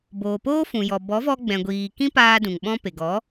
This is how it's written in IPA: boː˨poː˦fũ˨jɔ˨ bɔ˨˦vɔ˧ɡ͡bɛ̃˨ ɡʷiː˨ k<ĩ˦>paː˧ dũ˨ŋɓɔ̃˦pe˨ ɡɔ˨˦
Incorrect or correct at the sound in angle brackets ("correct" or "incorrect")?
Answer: correct